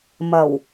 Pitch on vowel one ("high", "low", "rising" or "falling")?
low